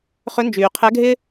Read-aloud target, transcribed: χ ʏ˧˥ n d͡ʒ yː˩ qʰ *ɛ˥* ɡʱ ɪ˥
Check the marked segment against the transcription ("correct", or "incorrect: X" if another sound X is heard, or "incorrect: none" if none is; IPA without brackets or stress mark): incorrect: ɛ˧˥